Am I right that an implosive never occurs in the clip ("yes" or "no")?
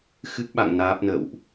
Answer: no